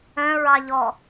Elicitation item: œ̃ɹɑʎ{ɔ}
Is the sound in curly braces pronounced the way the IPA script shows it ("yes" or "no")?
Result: yes